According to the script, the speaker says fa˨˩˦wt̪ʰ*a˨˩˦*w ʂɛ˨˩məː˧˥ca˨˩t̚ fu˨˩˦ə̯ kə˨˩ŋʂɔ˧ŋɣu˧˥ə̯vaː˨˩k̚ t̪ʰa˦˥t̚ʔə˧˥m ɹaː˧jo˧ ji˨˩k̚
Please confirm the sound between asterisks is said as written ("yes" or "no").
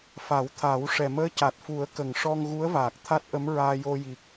yes